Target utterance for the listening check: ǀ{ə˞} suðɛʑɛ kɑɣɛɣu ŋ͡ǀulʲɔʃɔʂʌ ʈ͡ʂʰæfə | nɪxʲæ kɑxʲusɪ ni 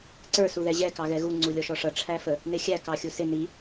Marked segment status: correct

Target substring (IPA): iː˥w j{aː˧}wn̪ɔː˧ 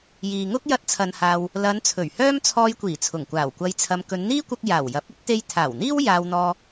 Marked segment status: correct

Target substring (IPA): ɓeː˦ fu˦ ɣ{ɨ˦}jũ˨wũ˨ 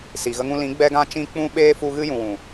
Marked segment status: correct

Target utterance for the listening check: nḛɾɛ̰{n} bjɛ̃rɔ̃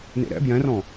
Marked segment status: incorrect: none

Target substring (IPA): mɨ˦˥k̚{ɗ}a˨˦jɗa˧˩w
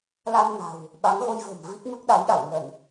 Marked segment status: correct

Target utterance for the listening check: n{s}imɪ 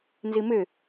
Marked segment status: incorrect: z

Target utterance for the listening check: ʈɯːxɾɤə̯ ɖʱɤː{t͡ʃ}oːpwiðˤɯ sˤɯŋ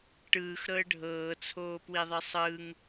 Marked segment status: incorrect: t͡sʰ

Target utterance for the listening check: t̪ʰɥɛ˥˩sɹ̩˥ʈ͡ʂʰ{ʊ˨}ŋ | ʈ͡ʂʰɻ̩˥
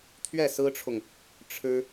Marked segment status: correct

